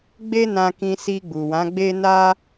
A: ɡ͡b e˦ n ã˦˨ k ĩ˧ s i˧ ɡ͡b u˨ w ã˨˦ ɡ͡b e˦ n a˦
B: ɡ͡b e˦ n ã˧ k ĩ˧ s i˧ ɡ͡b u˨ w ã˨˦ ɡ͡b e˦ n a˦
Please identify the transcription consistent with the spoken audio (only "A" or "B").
B